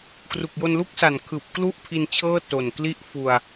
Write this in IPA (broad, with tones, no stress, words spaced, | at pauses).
kru˨˩k̚jo˧nlu˥˩k̚ sa˨˩nkʰɯː˨˩p̚ klu˥˩ʔ pʰi˧nt͡ɕʰɤː˥˩ to˨˩nkli˥˩ʔ fu˧a̯